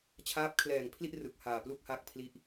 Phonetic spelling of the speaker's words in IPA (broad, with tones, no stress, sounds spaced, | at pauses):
t͡ɕʰ aː˦˥ p̚ kʰ l ɛː˨˩ ŋ pʰ l i˥˩ ʔ r ɯ˨˩ k̚ h aː˨˩ p l u˥˩ k̚ h a˦˥ k̚ pʰ l i˥˩ ʔ